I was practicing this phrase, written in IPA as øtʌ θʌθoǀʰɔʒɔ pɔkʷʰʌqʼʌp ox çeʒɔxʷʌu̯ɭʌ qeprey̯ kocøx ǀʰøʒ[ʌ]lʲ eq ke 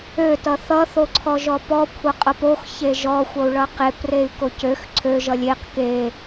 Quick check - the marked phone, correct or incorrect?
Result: correct